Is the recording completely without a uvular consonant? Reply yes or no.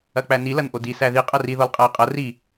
no